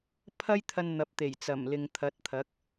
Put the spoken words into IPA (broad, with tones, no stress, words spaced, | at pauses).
pʰɐ˥jt̪ʰɐ˧n n̪ɐ˨p̚t̪e˨˩j t͡sɐ˨˩mlɪ˨ŋt̪ʰɐ˨˥t̚t̪ʰɐ˨˥k̚